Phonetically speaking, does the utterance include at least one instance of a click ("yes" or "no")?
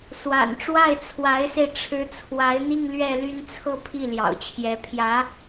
no